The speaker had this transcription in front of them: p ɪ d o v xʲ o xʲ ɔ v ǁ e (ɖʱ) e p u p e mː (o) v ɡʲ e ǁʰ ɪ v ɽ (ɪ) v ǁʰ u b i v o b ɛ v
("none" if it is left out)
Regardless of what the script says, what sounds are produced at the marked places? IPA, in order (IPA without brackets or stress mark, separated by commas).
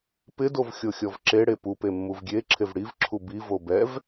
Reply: ɽ, u, i